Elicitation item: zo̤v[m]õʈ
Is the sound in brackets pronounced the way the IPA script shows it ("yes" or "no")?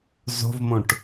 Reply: yes